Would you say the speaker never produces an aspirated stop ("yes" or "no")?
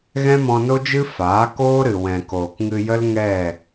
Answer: yes